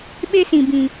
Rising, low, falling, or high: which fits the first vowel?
high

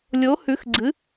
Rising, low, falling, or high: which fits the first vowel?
rising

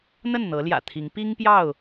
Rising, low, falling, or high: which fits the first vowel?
falling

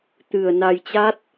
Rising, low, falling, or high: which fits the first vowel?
low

